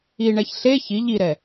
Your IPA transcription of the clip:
iɳɛç ɬe çi ʎiɾɛ

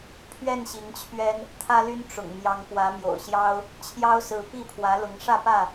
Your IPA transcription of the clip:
pʰɥɛ˥˨nɕi˨˦ŋt͡ɕʰɥɛ˦n | t̪ʰä˦ly˦n ʈ͡ʂʊ̰˨˩ŋ mjɑ˨˦ŋkwä˨˦mjo̰˨˩ʊ̯ɕjɑ˦ʊ̯ | t͡ɕʰjɑ˦ʊ̯sɹ̩˨˦pi˥˨ pʰwä˨˦lʊ˨˦ŋʂä˥˨pä˥˨

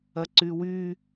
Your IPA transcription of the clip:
ɐǀywy

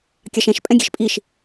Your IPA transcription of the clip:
kʲɑʃɛ̃ʃ pʼɛ̃ɡʲe̤ʃpʼiʃ

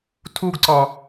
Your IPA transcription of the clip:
tʰuɡǀɒ

